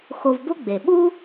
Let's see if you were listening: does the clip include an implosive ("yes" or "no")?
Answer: yes